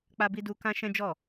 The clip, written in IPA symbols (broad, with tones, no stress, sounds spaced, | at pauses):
k͡p a˦ b i˦ d u˦ k ã˦ ʃ ɛ̃˦ d͡ʒ ɔ˦˨